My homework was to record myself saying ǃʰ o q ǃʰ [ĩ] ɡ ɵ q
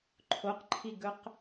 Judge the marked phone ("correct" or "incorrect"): incorrect